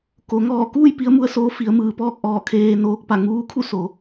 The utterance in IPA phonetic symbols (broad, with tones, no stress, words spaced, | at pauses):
ko˩˧ ŋɔː˧˩kuː˥˨j pi˧˥ə̯mu˧ə̯soː˧˥ fi˩˧ə̯mɯː˩pɔː˥˨k̚ʔɔː˧˩ kʰeː˧noː˧˥k̚pa˧˩ ŋuː˧˥kʰu˥˨so˩˧